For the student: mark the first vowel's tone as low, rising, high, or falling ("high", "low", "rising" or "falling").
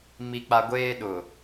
high